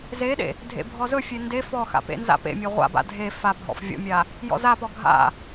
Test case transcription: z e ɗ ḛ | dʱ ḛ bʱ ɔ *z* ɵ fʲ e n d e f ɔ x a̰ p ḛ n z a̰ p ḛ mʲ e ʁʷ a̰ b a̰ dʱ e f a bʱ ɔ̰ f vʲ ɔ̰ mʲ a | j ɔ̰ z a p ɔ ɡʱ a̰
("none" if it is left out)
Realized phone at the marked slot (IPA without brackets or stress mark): z